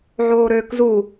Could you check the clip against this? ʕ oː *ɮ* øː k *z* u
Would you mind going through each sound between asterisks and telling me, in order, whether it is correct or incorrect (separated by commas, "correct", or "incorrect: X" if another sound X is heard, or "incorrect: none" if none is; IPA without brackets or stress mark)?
incorrect: ɾ, correct